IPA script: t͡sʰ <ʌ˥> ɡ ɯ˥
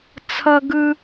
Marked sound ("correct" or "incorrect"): correct